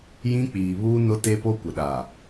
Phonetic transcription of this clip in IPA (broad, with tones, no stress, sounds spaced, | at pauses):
j ĩ˦ k͡p iː˨ β uː˦ n ʊ˦ t e˦ p o˦ kʷ ɪ˨ ɗ a˨